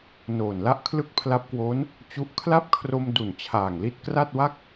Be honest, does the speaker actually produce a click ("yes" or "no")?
no